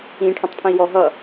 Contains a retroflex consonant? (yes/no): yes